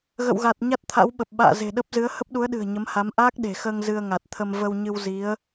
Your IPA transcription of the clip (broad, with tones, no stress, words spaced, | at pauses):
ɣə̰˧˨wɣa˨˩t̚ ɲa˦˥t̚t̪ʰa̰˧˥wɓə˨˩p̚ ɓa̰ː˧˨ ze̤˨˩ɗə˦˥p̚zɨ˨˦ə̯ hə˦˥p̚ɗu˨˦ə̯ɗɨ̤˨˩ə̯ ɲə˨˦mha˨˦m ʔaː˦˥k̚ɗe̤˨˩xəː˧ŋ zɨ˧ə̯ŋa˨˩t̚t̪ʰə˧m və˧wɲɨ˧w zi˨˦ə̯